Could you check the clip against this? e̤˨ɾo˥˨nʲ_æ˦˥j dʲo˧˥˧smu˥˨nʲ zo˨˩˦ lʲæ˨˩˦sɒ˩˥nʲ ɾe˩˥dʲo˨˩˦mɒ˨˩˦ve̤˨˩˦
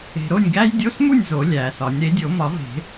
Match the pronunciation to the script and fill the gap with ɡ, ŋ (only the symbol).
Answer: ɡ